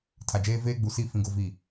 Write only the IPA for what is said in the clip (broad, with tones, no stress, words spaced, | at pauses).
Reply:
tʰa˨d͡ʒeː˦ veː˦ɡ͡bu˨si˦˨ fĩ˨ɡo˨vi˨